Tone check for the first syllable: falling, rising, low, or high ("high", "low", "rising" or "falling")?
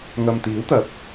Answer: low